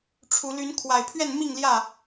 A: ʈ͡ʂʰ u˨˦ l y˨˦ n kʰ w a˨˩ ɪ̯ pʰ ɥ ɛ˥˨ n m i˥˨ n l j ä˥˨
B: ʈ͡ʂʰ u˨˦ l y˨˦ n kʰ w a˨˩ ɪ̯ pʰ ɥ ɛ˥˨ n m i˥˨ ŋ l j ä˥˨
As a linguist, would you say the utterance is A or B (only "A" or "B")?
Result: B